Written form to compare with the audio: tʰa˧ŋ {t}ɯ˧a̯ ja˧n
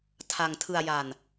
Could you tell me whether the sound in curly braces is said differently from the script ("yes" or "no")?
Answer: yes